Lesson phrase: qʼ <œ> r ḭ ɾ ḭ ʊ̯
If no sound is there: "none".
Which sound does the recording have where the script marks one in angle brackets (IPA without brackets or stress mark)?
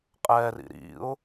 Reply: ɛ